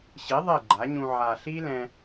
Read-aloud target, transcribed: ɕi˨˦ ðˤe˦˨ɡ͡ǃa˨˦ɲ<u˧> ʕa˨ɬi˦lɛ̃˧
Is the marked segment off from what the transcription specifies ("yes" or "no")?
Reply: yes